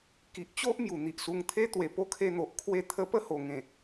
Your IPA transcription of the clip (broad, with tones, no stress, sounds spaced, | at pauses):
k i˨ ʔ t͡ɕ o˦ ʔ m j u˨˩ n̪ i˨ ʔ s u˧ ŋ t̪ʰ e˦ t̪ w e˨˩ p o˦ kʰ e˧ n̪ o˨ ʔ kʰ w e˥˧ t̪ʰ ə˧ p ə˦ h o˨˩ ŋ ẽ˨˩